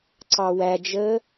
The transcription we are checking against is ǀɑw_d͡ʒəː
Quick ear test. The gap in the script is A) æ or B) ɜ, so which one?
A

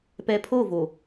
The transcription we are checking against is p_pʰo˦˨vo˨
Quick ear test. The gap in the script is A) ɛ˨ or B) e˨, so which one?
A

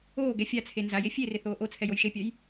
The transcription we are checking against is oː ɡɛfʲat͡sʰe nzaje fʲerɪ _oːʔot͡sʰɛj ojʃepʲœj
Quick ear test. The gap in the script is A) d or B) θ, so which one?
B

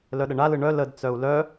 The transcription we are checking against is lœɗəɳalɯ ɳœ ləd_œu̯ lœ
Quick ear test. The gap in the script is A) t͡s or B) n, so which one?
A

